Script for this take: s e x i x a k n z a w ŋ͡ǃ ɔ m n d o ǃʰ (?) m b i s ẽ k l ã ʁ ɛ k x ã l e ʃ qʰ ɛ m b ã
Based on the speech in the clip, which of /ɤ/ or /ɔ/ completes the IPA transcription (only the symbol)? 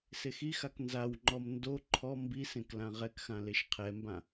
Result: ɔ